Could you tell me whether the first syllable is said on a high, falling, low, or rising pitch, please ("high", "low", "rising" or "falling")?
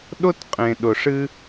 high